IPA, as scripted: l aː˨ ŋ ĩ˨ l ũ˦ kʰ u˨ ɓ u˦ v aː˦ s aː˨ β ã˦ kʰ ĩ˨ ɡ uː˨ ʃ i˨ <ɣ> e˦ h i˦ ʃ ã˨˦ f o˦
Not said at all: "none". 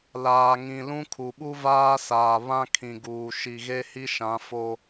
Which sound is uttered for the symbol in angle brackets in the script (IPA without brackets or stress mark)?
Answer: ɣ